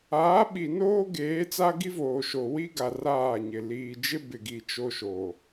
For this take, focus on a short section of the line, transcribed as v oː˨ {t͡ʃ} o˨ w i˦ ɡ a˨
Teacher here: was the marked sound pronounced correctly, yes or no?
no